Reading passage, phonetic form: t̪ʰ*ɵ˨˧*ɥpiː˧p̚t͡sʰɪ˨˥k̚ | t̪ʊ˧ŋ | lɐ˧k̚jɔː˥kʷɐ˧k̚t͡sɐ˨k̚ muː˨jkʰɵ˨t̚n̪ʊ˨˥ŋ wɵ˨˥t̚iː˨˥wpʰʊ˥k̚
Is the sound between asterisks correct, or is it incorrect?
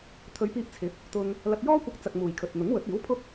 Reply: correct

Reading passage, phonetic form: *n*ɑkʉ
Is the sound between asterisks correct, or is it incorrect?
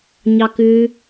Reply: incorrect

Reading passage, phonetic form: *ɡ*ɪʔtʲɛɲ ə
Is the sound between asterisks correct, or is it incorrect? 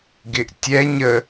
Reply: correct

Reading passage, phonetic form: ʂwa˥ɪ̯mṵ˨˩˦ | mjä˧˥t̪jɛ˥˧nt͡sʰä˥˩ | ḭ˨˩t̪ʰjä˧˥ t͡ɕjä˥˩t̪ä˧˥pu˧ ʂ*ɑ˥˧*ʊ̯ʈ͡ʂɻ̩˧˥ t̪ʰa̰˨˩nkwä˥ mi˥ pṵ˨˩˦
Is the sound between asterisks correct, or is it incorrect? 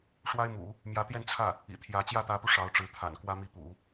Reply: incorrect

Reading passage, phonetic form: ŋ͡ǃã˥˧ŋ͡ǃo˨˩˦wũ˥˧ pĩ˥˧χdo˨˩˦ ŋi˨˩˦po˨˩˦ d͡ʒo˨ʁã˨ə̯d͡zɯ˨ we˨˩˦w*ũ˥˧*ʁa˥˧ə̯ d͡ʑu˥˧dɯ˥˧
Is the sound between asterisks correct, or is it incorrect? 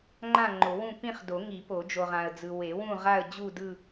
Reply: correct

